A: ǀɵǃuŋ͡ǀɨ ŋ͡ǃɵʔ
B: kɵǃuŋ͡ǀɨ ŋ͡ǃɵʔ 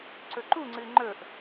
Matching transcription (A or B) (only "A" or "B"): A